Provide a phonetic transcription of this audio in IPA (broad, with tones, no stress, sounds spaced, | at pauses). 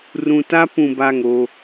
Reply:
r ũ˨ t a˦ p ũ˨ b a˦˨ ŋ o˦